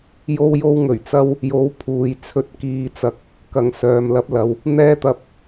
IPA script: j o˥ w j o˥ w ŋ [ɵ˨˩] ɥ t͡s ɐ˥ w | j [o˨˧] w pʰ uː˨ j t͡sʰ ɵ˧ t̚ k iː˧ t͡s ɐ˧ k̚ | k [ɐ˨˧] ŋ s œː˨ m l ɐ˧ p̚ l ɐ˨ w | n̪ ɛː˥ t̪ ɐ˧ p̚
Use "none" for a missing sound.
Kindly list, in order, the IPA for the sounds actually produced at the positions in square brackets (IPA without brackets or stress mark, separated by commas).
ɵ˨˩, o˨˧, ɐ˨